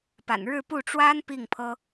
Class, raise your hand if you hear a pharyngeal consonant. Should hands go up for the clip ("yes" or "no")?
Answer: no